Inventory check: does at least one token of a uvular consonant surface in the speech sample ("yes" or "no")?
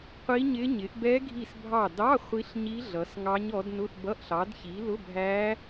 yes